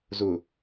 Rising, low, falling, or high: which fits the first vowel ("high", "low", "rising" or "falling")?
low